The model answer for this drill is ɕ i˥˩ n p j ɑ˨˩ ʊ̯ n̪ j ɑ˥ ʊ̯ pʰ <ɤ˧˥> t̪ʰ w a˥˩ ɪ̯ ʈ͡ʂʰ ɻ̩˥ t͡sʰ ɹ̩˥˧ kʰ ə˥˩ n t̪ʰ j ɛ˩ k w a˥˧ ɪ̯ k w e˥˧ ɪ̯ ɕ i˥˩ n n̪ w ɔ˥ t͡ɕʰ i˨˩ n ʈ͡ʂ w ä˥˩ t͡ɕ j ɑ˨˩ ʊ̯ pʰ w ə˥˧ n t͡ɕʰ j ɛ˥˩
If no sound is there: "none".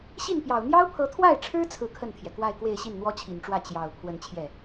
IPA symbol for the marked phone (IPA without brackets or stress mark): ɤ˧˥